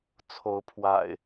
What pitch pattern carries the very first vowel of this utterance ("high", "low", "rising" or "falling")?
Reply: rising